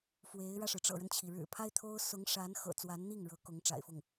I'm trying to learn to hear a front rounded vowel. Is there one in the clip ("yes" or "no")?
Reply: no